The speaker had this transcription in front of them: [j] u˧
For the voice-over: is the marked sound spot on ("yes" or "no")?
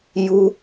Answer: yes